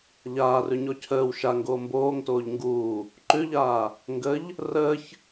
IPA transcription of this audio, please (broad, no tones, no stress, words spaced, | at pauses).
ʎaːrʉɲɔ cʰəːw ʃaŋɡoː mboːŋtoːʎ ŋɡuː | ǃʉʎaː | ŋɡəʎ | rəːç